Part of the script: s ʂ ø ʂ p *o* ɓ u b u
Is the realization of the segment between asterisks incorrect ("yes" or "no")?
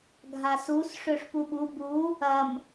yes